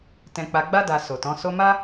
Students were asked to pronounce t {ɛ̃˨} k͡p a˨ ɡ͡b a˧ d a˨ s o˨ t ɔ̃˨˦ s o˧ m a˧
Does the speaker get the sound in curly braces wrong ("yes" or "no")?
no